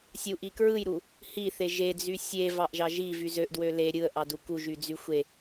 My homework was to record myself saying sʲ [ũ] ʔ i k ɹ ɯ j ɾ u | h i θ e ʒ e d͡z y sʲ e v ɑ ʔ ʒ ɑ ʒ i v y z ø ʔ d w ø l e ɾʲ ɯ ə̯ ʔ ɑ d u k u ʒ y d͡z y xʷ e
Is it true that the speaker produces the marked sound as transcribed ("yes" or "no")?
no